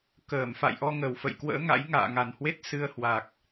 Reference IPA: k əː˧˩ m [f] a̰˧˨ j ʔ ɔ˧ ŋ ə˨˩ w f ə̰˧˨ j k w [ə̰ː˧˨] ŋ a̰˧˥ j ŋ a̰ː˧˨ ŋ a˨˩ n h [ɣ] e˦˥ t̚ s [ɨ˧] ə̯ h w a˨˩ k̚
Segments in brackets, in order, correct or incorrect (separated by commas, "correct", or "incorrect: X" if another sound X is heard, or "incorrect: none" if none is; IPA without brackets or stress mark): correct, incorrect: ə̰ː˧˥, incorrect: w, correct